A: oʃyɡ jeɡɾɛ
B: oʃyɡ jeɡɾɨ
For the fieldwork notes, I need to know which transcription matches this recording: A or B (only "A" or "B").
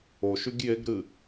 B